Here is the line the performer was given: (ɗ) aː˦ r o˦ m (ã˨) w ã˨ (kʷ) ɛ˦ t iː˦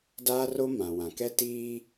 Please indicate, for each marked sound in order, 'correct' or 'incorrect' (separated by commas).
incorrect, correct, incorrect